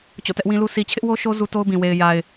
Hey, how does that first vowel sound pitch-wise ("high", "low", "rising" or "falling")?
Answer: falling